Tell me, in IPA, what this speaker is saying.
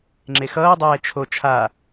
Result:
ŋ͡ǁ e x ʌː dˤ ɛː t͡ʃʰ o t͡ʃʰ a

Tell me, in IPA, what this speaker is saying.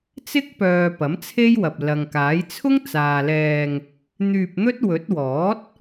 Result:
t͡s ɪ˥ k̚ p œː˨ p ɐ˨˥ m t͡sʰ e˥ j w ɐ˨ p̚ l ɐ˨ ŋ k aː˨˥ j t͡sʰ ʊ˥ ŋ t͡s aː˨ l ɛː˧ ŋ | n̪ yː˧ p̚ n̪ ɵ˥ t̚ w ɵ˨˥ t̚ w ɔː˨˥ t̚

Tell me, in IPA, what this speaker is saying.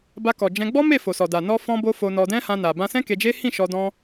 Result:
b a˧ k ɔ˨ d͡ʒ ɛ̃˧ ɡ͡b ɔ˦ m e˦˨ f o˨ s ɔ˨ d a˨ n ɔ˧ f ɔ̃˧ b o˦ f o˧ n ɔ˧ d ɛ̃˦ h ã˧ n a˨ b ã˧ s ɛ̃˦ k e˧ d͡ʒ e˦ h ĩ˦˨ ʃ ɔ˧ d ɔ̃˧

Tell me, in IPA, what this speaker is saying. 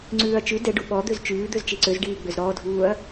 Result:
ŋ͡ǀ ʉː ɐ̯ t͡ʃ ʉ d ɛ ɖ u ɓ ɔ d̪ ø z t͡ʃ ʉː d̪ ø z t͡ʃ i ǀ ø z ɖ iː ɡ͡b ø z ɾ ɔː dʱ uː ɐ̯

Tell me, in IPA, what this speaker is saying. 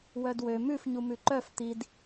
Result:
w œ d w ø m ʉ f ɲ u m ʉ ǃ œ f t̪ i d

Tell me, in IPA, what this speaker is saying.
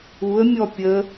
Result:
u ə̯ mʲ ɔ pʲ ə

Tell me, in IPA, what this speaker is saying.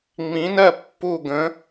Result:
ŋ͡m ĩ˨˥ n ɜ˦˨ pː u˦˨ ɡ ə̃˨˥

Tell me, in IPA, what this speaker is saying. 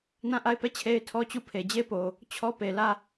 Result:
n ã˦˨ ʔ a˦˨ ɪ̯ p ɛ˦˨ t͡ɕʰ e˦ ɪ̯ tʰ ɔ˦ t͡ɕ u˦˨ pʰ e˨ d͡ʑ e˦ p o˨ | t͡ɕʰ ɔ˦ p e˨ l ä˦˨

